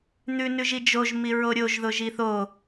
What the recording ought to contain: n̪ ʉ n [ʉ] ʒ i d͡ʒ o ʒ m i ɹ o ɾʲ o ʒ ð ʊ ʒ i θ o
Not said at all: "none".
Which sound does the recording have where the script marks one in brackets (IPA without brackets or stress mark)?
ʉ